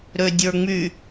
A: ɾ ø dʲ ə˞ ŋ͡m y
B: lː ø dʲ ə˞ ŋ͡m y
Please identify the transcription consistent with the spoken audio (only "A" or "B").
A